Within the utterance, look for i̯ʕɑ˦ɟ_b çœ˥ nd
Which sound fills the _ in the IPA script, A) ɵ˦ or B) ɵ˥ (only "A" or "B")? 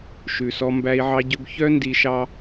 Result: A